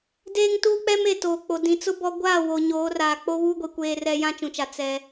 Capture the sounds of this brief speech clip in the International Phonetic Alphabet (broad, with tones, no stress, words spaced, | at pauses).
deː˦ŋtuː˦k͡pɛ˦m e˨toː˨k͡po˨ dĩ˨t͡sʊ˦bɔ˦ ɡʷaː˦˨ wo˨ɲoː˨˦raː˨ k͡po˦βuː˦ɡʷi˨ kʷeː˦rɛ˦ jã˦t͡ʃũ˨t͡ʃa˨ t͡sɛ˦